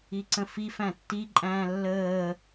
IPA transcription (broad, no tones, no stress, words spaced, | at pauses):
iǀə̃fi fæ̃tːiǃʼæ̃ː lːəː